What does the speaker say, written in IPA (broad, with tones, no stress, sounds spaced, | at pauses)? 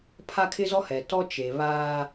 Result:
pʰ a˦ kʰ ɪ˦ z ɔ˦ h ɛ˨ t ɔ˦ t͡ʃ eː˨ β aː˦